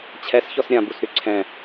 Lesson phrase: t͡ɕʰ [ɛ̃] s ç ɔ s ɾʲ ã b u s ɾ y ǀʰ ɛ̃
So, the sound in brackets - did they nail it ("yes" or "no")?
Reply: no